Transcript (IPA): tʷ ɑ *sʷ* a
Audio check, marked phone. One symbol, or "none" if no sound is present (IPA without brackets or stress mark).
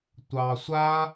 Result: sʷ